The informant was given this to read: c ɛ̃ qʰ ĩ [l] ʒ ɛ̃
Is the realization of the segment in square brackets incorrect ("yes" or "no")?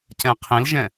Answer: no